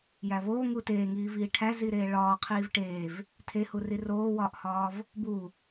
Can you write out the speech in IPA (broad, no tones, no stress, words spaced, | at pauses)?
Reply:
jævoː ŋuteːŋiːviː ʈʰæziɾeː ɭɒː qʰiːvʈeːv | tʰehu riroːwɒːʔhɒːv | bu